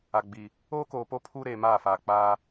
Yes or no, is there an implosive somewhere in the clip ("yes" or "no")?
no